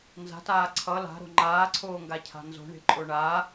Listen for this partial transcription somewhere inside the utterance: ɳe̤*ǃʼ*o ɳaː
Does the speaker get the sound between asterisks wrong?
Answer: no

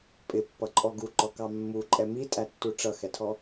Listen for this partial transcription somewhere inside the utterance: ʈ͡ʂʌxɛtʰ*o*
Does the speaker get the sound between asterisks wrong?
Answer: yes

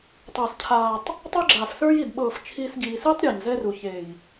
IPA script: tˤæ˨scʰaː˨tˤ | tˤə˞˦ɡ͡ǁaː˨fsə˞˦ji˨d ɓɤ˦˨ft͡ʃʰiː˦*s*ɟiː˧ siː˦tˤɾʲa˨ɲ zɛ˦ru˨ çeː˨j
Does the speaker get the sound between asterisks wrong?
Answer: no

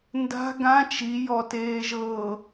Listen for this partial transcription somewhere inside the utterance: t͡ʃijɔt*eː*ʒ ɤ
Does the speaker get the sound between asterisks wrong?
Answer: no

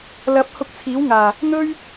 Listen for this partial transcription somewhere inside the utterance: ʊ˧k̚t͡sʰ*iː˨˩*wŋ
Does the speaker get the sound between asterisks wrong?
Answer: yes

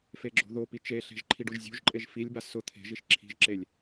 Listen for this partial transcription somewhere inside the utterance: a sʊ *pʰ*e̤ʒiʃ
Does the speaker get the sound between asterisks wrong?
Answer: yes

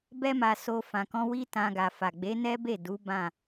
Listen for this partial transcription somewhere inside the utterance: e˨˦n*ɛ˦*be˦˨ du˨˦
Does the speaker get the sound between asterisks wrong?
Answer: no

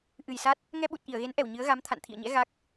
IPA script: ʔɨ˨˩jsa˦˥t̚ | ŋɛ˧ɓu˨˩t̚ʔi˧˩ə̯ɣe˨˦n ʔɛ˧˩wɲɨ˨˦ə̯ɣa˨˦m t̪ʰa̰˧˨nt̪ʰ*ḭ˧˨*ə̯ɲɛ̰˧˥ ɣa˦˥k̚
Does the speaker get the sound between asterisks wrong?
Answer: no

